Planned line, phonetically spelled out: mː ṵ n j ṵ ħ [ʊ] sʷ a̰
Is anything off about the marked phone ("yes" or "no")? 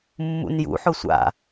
no